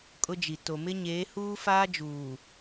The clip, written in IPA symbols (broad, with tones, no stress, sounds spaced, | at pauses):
kʼ ʊ˦ d͡ʒ i˨ t o˨ m ɪ˦ ɲ eː˨˦ h uː˦ f aː˦ d͡ʒ uː˨